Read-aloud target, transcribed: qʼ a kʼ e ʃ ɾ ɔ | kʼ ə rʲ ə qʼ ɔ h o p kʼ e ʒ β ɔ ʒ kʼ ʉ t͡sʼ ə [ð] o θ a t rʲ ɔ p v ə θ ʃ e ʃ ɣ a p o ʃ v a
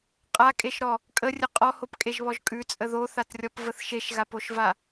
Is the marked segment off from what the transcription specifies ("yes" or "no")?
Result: no